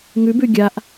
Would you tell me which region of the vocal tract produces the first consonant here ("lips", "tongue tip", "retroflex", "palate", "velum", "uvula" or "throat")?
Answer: velum